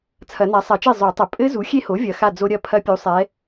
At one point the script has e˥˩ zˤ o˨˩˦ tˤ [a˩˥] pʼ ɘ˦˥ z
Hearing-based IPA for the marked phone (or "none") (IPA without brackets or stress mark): ɐ˩˥